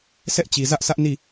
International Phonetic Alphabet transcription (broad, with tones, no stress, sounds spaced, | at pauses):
s ɛ˦ ʔ t͡ɕ i˨ z ä˦ ʔ s ä˦ ʔ n i˦˨